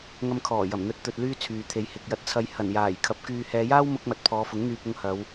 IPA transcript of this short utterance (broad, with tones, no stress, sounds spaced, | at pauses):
ŋ ɐ˧ m kʰ ɔː˨˩ j ɐ˨˩ m n̪ ɵ˨˥ t̚ t̪ ɵ˧ t̚ l yː˥ t͡sʰ yː˨ t̪ʰ e˨˧ j h ɪ˨ k̚ j ɐ˧ t̚ t͡sʰ ɐ˧ j h ɐ˨˩ n j aː˨˩ j kʰ ɐ˨˥ p̚ k yː˨ h ɛː˨˧ j aː˥ w m ʊ˥ k̚ m ɐ˧ t̚ pʰ ɔː˨˧ f ʊ˨˥ ŋ n̪ yː˧ p̚ ʊ˧ ŋ h ɐ˨˧ w